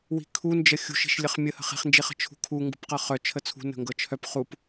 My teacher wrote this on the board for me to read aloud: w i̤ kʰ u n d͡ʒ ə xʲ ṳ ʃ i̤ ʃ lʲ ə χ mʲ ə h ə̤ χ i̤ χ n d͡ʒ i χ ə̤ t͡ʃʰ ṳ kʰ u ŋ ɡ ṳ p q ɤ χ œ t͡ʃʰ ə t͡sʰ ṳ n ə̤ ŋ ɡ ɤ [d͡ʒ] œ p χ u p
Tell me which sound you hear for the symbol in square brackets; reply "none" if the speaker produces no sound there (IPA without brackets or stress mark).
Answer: t͡ʃʰ